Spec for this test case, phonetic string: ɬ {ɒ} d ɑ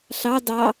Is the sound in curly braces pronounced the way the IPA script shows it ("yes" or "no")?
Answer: no